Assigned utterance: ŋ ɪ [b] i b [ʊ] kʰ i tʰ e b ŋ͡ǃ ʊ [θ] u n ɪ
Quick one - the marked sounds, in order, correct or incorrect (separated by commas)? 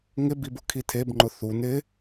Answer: correct, correct, correct